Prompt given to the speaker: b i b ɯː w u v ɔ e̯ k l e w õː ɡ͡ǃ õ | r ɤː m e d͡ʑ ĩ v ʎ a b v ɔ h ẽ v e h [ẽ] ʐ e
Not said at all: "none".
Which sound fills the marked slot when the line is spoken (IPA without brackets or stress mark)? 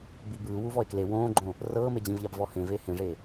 ẽ